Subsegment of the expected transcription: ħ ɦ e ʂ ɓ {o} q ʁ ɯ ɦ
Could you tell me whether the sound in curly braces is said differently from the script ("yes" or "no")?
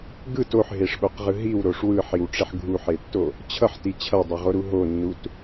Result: no